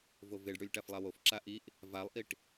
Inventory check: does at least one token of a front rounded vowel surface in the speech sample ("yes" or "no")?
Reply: no